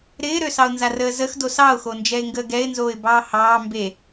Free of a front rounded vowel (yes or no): no